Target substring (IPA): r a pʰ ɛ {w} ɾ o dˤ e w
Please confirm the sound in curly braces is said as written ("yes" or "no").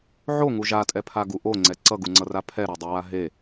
no